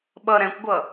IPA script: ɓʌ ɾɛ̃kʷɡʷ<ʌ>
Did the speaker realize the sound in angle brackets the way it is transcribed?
yes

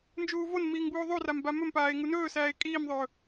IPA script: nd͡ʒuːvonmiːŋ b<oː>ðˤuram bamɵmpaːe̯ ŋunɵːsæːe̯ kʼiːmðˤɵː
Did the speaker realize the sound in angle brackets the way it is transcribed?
no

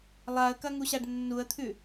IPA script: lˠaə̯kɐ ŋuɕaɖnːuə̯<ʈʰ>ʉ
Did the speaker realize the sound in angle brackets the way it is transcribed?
no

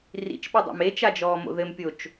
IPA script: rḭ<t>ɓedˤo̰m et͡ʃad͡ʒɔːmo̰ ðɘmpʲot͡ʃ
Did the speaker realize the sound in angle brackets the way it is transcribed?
no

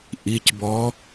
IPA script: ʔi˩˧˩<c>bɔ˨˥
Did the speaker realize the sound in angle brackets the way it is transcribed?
yes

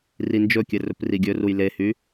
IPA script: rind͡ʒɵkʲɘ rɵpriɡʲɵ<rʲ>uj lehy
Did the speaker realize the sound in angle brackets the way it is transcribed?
no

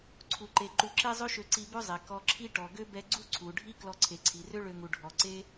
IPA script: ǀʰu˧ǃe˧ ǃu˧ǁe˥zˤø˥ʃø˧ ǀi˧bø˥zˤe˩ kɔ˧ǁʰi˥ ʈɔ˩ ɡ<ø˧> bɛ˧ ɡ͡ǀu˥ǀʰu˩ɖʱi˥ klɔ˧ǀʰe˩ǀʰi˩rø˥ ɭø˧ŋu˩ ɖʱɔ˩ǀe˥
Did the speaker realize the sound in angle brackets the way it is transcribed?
no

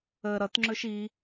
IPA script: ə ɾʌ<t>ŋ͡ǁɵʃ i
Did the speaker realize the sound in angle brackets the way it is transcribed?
yes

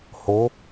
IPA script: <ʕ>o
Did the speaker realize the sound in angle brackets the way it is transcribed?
no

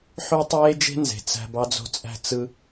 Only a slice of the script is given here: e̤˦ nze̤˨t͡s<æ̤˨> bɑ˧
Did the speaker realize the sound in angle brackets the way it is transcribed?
no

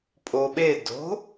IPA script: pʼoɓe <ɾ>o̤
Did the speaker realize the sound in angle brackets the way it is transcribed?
no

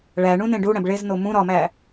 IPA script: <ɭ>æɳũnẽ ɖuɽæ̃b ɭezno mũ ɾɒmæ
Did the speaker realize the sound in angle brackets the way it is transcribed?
yes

